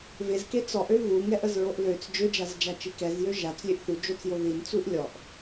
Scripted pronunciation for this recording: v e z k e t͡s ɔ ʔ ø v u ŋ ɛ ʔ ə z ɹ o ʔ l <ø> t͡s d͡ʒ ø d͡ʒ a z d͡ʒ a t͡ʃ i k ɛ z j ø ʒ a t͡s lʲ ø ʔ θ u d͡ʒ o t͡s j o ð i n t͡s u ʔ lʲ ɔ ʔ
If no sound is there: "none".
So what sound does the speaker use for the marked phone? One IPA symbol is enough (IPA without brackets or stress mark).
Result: ø